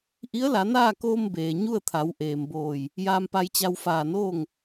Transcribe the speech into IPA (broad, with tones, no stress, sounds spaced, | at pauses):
ʔ i˧˥ ə̯ l a˩˧ n aː˥˨ k oː˧ m b eː˩ ɲ u˥˨ ə̯ t̪ʰ a˩˧ w ʔ eː˩ m b oː˧˩ j | j aː˧ m p a˧ j t͡ɕ a˧ w f aː˧˩ n oː˥˨ ŋ